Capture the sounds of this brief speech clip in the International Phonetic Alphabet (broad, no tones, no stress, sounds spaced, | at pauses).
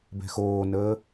b ɛ̤ x oː n əː